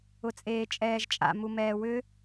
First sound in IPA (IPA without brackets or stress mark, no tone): ʊ